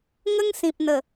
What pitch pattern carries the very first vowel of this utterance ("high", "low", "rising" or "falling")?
high